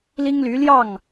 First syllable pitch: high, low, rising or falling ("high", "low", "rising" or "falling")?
high